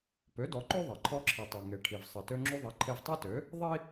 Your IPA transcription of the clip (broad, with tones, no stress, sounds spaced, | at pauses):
p ø˩˥ d ɔ˩˥ ǃ ø˥ ðˤ ɐ˩ ǃʰ ɔ˧ ǁʰ i˩ tˤ ø˩ ŋ e˩ ʈʰ i˩ v sˤ ɐ˩ t ø˧ ŋ͡ǁ u˧ ðˤ ɐ˩˥ ǃʰ e˧ v tˤ e˥ t ø˩˥ | ðˤ i˥